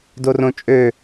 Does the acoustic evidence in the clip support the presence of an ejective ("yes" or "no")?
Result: yes